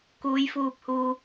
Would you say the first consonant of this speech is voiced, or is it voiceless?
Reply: voiceless